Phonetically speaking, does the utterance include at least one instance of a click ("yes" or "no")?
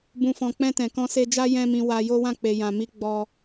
no